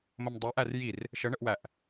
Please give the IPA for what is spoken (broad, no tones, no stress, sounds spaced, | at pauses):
m ə m dˤ u ʔ æ r j i r | ʃ ə ɳ ə ʔ w æ ʔ